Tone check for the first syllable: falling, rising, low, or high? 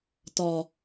low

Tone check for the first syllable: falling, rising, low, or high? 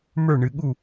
falling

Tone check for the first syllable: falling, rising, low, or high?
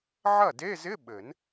falling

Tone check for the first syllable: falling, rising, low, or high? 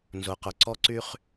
low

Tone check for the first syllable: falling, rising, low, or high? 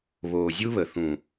low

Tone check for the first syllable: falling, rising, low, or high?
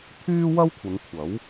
high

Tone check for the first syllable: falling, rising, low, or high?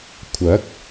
rising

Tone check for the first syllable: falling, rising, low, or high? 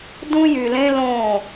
high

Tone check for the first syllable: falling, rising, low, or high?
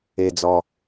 low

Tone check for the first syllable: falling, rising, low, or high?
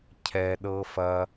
low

